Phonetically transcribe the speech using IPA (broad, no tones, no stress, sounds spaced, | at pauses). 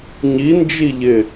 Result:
ɲ i n d͡ʒ i ʎ ɪ